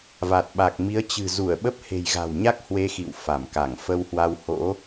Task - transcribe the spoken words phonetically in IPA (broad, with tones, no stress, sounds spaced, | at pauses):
v a˨˩ t̚ ɓ a˨˩ k̚ m i˨˦ ə̯ t͡ɕ ɨ̤˨˩ z u˧˩ ə̯ ɓ ə˦˥ p̚ h e̤˨˩ j ɣ a̤˨˩ w ɲ a˦˥ k̚ h w e˧ x ḭ˧˨ w f a˧˩ m k a˧˩ ŋ f ə˧ w h w a˧ w h o̰˧˥